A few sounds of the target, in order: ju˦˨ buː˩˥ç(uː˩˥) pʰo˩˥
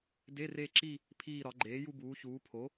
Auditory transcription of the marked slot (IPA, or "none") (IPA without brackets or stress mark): uː˩˥